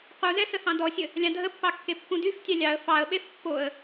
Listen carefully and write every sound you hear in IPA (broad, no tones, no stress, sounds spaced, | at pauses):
q u z ɛ s ə h ɑ̃ d ɔ sʲ ə | lʲ ɑ̃ dʱ ə pː ɑ kː e pː ũ d y f tʲ ɑ lʲ ɑ ə̯ f ɑ ə̯ ɓ e f pː o ə̯